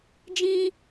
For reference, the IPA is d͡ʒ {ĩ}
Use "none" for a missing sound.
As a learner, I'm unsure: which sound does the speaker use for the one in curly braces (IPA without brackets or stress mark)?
ĩ